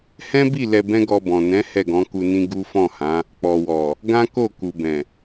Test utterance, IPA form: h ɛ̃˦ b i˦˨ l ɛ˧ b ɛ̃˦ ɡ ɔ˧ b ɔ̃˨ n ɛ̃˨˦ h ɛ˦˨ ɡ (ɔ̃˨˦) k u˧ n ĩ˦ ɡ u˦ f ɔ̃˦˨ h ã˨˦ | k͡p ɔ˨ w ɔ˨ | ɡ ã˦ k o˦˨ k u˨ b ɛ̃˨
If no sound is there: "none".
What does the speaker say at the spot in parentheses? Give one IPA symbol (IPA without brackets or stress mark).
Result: ɔ̃˨˦